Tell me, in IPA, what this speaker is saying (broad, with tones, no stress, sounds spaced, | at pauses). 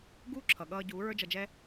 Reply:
ɡ uː˦ ǁʰ ʌ˨ ɠ ʌː˧ ɟ uː˨˦ ɹ ə˞˦ d͡ʒ ʌ˧ d͡ʒ ɛ˦